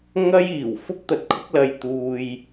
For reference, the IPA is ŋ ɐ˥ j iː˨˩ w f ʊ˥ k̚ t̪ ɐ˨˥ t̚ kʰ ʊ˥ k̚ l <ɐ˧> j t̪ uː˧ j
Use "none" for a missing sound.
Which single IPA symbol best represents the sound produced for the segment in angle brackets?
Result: ɐ˧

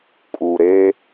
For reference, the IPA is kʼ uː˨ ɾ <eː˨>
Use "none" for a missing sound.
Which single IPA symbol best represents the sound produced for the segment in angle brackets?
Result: eː˦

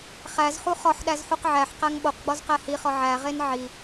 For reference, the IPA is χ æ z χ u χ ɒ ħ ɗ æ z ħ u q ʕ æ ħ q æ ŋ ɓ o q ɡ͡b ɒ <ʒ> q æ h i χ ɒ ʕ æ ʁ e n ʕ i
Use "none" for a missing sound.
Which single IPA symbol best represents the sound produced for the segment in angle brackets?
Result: z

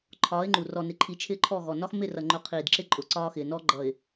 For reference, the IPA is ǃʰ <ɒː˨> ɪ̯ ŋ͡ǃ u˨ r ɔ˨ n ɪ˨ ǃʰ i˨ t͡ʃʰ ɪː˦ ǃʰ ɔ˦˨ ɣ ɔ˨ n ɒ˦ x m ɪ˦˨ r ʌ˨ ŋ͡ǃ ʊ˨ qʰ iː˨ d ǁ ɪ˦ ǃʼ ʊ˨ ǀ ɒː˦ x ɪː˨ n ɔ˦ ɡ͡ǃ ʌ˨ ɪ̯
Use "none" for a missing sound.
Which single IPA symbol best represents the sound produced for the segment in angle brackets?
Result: ɒː˨˦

